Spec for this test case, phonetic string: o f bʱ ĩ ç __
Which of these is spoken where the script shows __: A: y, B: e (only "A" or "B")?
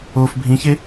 B